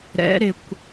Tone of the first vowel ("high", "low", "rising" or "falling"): rising